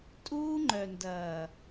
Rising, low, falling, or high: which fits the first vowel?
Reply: high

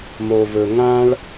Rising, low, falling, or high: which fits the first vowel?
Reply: low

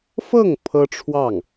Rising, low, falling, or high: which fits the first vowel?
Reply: falling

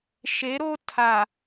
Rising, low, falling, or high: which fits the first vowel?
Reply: rising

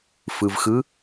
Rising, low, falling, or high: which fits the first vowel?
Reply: low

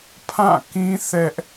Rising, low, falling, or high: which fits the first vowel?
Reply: falling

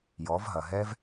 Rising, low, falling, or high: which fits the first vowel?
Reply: rising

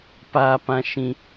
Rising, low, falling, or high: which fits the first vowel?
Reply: high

